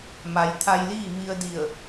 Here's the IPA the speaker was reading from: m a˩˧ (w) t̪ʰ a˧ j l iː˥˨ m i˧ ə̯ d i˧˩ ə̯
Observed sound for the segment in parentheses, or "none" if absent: j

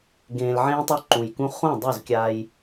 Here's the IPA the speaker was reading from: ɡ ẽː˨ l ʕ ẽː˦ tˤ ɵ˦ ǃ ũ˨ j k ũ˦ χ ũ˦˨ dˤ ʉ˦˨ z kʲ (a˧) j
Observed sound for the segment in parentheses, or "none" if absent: a˧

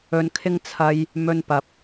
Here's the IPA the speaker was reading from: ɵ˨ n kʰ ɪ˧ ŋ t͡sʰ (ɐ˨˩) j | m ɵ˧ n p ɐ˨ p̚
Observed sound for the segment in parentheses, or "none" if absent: ɐ˧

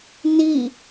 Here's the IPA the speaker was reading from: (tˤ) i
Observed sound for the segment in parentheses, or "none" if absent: n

